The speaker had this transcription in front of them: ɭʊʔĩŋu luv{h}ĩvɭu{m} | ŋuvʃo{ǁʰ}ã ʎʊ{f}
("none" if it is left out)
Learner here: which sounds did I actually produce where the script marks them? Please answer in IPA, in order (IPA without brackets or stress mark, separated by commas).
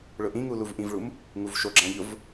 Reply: ʔ, m, ɡ͡ǁ, v